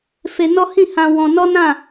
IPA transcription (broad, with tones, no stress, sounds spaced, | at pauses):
f e˧ n ɔ˦ h ĩ˦˨ h ã˧ w ɔ̃˧ n ɔ˦ n ã˦˨